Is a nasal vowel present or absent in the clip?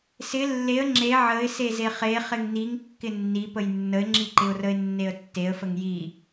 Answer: absent